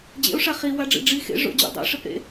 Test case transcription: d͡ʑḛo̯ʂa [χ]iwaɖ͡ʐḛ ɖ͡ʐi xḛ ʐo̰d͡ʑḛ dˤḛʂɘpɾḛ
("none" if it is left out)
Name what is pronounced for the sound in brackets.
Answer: χ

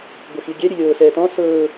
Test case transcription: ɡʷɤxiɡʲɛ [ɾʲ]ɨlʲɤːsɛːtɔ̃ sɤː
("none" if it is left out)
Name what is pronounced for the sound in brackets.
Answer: ɾʲ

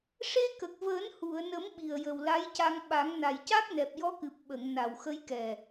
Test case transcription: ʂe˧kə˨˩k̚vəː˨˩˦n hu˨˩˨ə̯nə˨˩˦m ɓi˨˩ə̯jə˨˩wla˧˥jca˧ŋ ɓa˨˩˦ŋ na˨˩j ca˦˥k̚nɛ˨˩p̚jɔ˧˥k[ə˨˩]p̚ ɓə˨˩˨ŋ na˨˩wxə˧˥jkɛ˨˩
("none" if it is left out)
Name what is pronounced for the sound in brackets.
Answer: ɨ˨˩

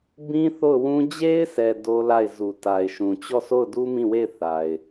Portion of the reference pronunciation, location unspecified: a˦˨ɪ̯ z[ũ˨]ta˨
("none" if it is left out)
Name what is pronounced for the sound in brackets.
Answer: u˨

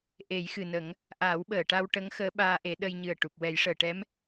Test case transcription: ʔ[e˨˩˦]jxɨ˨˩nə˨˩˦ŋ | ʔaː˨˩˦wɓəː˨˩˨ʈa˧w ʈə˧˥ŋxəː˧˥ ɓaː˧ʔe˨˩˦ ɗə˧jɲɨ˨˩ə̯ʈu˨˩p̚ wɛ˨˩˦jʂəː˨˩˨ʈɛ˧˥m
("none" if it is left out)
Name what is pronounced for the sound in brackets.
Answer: e˨˩˦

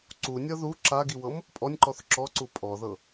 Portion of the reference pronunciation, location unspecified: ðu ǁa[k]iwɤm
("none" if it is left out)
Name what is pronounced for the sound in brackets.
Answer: ɡ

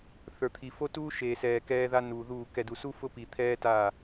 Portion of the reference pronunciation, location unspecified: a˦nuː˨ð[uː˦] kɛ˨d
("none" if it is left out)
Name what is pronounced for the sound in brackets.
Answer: uː˦˨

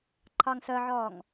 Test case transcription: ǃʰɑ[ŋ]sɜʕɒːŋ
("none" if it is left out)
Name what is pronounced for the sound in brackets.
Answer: ŋ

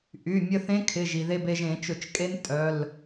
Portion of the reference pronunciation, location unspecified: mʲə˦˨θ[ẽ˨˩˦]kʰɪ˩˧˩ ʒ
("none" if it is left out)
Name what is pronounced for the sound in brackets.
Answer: ẽ˦˥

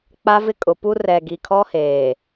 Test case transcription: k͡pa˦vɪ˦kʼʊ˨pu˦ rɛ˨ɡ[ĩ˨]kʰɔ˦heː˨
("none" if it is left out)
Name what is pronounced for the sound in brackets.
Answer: i˨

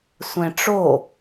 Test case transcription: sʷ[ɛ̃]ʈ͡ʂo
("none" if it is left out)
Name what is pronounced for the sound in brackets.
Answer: ɛ̃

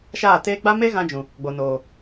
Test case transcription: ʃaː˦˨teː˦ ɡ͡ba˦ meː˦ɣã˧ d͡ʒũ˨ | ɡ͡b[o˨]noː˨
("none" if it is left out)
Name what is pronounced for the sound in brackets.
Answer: o˨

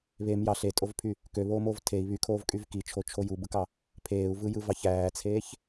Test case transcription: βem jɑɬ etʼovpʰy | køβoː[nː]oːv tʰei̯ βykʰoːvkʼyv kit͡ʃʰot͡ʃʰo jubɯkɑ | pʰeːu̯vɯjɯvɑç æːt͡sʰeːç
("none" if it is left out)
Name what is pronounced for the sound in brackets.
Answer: m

